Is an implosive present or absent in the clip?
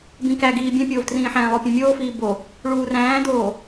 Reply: absent